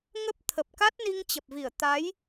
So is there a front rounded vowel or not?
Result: no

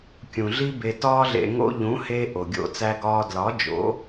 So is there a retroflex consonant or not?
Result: no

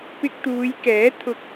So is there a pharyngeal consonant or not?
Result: no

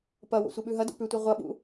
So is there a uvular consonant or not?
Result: yes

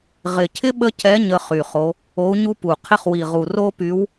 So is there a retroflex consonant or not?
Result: no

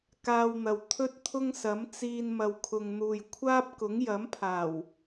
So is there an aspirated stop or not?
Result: yes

